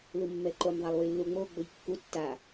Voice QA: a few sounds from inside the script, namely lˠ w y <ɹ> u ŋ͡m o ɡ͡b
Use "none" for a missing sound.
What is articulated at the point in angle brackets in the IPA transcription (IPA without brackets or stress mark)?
lː